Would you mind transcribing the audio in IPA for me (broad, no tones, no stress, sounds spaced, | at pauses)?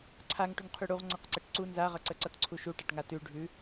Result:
ǀʰ a ŋ ʈ ʉ ŋ qʰ y ɽ u ʁ ŋ͡ǀ ʌ q ǀ ə ʈ ǀ u n z a ʁ ʌ ǀ ə ǀ ʌ t ǀʰ u ʃ u ʈ a ʈ ŋ a t ʉ ɖʱ ʉ